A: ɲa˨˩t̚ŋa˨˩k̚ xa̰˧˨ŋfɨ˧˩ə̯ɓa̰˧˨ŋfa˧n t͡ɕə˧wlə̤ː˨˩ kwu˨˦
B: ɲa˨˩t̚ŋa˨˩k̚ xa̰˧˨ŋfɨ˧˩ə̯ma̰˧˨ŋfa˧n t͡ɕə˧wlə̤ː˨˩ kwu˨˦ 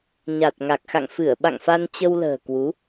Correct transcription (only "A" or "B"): A